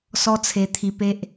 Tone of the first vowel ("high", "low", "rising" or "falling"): high